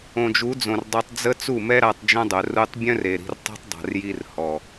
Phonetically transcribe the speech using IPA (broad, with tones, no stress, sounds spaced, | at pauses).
õ˨ d͡ʒ u˨˦ d͡z õ˨ r dˤ œ˧ tˤ d͡z ə˦ t͡s u˦˨ m ɛ˦ ɾ a˧ tˤ d͡ʒ œ̃˦ dˤ œ˨ r u˧ tˤ bʲ œ̃˦ r e˨ ɾ i̤˧ r tˤ ɛ̤˦ tˤ dˤ a̤˨ r j i˧ r h ɔ˨